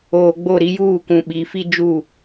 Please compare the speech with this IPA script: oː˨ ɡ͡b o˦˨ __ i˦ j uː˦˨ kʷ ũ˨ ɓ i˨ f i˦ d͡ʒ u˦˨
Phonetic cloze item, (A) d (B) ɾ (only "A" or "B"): B